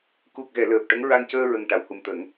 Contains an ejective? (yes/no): no